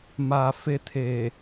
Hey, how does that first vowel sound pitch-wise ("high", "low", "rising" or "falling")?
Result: low